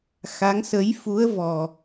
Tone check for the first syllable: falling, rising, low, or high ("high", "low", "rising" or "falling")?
rising